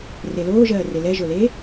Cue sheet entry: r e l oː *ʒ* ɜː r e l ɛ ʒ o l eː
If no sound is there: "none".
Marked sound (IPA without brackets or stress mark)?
ʒ